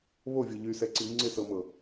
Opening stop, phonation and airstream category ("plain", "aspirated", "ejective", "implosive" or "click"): click